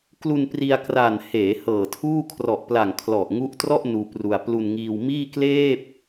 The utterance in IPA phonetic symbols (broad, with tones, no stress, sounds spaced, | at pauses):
k l u˧ n p r i˧ a̯ k r a˨˩ n h eː˩˦ h ɤː˨˩ tʰ uː˥˩ kʰ r ɔ˨˩ ʔ p l a˨˩ ŋ kʰ l ɔ˨˩ ʔ ŋ u˦˥ ʔ t r ɔ˥˩ ʔ n uː˧ p r u˧ a̯ p l u˧ n ŋ iː˧ w m iː˥˩ k l eː˥˩ p̚